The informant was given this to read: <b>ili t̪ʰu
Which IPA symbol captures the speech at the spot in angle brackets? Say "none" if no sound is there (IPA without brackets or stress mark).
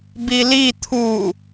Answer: b